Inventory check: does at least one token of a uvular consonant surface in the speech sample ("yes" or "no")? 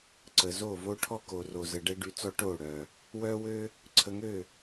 no